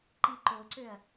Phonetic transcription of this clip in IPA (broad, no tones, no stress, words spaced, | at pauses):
ǃiǃoǀøɐ̯